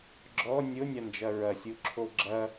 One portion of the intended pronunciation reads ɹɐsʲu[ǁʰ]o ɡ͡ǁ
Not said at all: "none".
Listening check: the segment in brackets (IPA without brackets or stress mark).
ǁʰ